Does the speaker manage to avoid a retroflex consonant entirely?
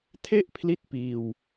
yes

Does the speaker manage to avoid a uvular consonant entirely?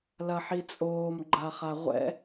no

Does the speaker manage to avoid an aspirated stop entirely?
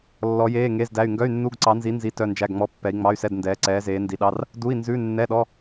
yes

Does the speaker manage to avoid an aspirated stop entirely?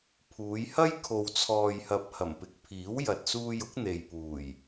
no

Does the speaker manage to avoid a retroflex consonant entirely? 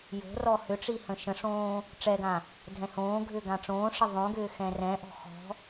no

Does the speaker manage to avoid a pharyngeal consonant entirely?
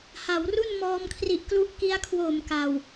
yes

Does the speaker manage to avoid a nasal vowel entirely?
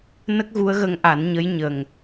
yes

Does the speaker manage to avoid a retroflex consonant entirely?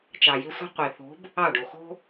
no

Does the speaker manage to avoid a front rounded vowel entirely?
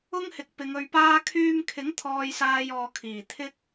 no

